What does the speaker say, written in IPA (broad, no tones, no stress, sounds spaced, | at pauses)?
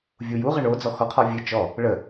vʲ u j u ʁ ə ɳ o d͡z ɔ x ɔ qʰ ɔ vʲ ɨ t͡ʃ ɔ | ɭ ə